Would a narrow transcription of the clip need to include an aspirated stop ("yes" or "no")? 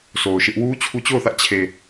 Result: yes